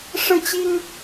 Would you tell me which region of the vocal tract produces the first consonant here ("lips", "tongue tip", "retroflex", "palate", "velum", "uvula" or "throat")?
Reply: retroflex